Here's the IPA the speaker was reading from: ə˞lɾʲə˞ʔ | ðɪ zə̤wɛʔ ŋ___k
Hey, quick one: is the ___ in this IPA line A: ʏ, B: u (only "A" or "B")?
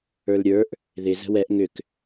A